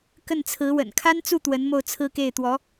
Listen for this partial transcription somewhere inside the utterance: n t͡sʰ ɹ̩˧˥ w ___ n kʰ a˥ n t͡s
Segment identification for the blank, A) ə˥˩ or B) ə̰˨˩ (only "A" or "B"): B